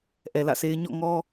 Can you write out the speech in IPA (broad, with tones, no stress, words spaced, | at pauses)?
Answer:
ʔɛ˨lä̰˦˨se˦ɪ̯ ɲɔ̰˦˨ŋɔ˦